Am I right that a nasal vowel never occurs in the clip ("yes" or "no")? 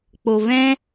no